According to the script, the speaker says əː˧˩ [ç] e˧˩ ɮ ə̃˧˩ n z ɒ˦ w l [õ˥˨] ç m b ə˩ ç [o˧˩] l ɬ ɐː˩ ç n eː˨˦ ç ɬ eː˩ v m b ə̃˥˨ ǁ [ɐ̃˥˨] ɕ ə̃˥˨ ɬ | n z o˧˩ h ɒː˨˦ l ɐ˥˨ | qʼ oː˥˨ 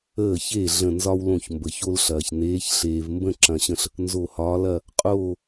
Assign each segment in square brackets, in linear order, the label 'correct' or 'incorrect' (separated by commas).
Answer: correct, incorrect, incorrect, incorrect